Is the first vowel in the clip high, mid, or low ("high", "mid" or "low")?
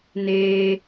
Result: mid